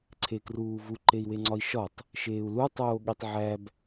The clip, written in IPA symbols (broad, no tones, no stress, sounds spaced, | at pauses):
ǀʰ e k r uː v u ǃ e i̯ w e ŋ͡ǀ ɒ i̯ ʃ ɒ tˤ | ʃ eː u̯ l u tˤ oː ɠ i tˤ ʕ æ b